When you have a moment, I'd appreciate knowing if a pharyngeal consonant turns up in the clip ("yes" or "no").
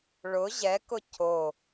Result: no